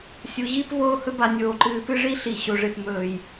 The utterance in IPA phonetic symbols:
sʲ u˩˧ ʑ iː˥ p v oː˥˧ h ɵ˥ b a˧ nʲ oː˧˩ ǃ ɨː˧ p ɨ˥ ʐ i˥ ɬ i˧˩ ɕ o˧ ʐ e˥˧ p m ɵː˧˩ j

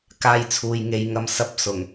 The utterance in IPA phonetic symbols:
k aː˧ j t͡sʰ uː˨ j ŋ e˨ j ŋ ɐ˧ m s ɐ˧ p̚ s ʊ˨˩ ŋ

